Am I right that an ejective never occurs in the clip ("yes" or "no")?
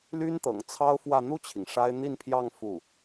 yes